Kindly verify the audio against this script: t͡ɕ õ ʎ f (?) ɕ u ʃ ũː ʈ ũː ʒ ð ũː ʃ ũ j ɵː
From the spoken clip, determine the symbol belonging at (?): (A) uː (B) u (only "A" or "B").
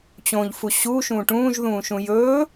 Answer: B